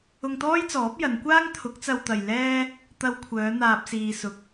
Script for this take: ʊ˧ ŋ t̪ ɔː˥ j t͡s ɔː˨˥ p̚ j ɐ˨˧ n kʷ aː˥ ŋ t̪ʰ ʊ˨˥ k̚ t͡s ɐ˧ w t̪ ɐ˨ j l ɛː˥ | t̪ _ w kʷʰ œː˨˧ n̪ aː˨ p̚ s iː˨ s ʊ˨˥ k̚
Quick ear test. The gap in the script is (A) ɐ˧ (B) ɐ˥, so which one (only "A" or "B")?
A